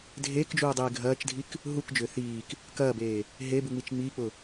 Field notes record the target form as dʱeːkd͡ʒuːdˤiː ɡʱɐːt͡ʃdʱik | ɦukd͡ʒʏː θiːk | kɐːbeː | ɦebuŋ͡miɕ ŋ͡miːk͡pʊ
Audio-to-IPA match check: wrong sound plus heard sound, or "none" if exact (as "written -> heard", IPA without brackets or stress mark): ɕ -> t͡ʃ